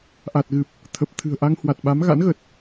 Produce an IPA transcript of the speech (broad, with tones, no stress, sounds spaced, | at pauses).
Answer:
ʔ a˨˩ t̚ ɣ ɨ˨˩ p̚ | t̪ʰ ə˨˩ p̚ t̪ʰ ɨ̤˨˩ ə̯ ʔ a˧ ŋ h w a˨˩ t̚ ɓ a˨˦ m ɣ a̰˧˥ n ɣ ə˨˩ t̚